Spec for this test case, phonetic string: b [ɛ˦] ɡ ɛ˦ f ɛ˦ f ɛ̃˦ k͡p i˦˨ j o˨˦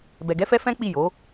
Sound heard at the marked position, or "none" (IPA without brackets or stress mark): ɛ˧